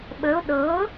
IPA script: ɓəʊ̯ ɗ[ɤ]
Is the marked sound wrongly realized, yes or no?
no